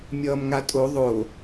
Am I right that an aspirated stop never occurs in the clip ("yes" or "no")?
yes